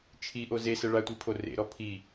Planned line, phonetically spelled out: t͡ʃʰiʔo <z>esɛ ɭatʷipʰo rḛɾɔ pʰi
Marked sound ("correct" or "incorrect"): correct